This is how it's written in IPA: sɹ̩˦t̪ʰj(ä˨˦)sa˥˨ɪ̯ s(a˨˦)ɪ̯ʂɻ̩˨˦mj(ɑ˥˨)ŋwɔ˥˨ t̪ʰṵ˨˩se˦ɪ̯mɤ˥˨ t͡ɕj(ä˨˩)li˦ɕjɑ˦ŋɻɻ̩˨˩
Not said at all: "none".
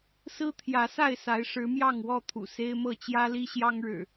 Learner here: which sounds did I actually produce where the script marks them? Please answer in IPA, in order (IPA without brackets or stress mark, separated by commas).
ä˨˦, a˨˦, ɑ˥˨, ä˦